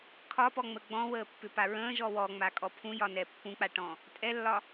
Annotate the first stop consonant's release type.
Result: aspirated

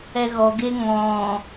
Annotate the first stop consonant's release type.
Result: plain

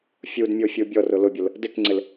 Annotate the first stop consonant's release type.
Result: plain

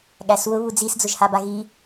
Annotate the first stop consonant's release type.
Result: implosive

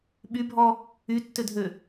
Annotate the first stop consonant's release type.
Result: implosive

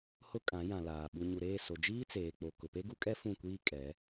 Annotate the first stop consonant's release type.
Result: ejective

